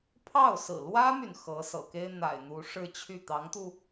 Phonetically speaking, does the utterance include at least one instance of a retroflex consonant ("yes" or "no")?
yes